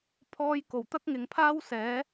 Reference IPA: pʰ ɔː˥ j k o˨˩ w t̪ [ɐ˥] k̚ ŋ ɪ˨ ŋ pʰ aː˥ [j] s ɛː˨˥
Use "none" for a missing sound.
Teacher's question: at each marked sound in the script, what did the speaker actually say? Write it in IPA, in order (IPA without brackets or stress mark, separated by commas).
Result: ɐ˥, w